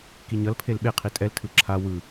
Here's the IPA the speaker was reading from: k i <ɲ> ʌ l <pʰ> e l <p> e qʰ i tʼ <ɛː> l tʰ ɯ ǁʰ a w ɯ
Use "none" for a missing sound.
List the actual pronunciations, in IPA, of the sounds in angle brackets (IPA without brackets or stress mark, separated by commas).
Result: ɲ, pʰ, ɓ, ɛ